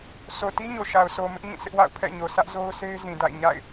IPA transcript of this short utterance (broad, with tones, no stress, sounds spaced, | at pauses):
s o˨ t i˦ ɲ o˨ ʃ a˨ ʊ̯ s o˨ m ɪ˦ ʔ ɲ ĩ˦˨ sʰ ɪ˦ ʔ w a̰˦˨ ʊ̯ pʰ ɛ̰˦˨ ɲ o˨ s ä˦ ʔ z o˦ ʊ̯ sʰ e˦ ɪ̯ z ĩ˨ d a̰˦˨ ɪ̯ ɲ a̰˦˨ ɪ̯